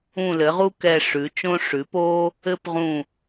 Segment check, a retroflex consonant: present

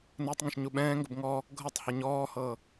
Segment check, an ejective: absent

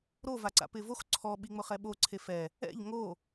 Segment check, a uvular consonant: present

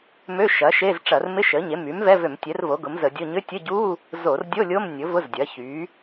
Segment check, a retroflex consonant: present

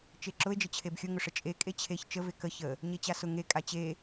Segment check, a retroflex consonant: present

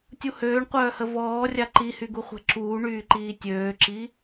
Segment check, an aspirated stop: absent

